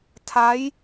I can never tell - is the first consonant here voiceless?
yes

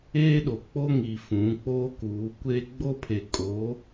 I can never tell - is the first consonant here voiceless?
no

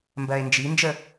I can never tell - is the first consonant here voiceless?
no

